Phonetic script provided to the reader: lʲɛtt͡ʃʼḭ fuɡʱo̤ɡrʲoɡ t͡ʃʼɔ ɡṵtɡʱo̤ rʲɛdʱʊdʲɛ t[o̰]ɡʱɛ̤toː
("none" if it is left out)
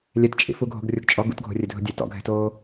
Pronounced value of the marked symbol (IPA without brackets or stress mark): ɔ̰